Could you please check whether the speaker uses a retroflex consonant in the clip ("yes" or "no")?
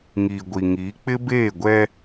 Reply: no